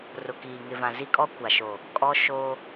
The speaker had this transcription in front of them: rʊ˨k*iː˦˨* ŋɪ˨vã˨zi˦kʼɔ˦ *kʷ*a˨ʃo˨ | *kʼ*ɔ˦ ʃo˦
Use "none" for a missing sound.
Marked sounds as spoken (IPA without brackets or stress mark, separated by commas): iː˨, kʷ, kʼ